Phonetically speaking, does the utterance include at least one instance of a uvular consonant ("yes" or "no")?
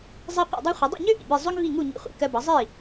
yes